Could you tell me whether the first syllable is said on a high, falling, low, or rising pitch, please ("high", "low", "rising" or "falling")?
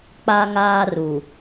high